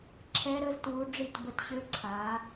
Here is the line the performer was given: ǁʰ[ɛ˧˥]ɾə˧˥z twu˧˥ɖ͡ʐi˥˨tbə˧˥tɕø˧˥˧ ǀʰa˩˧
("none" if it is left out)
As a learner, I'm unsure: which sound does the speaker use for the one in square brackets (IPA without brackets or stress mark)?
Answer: ɛ˧˥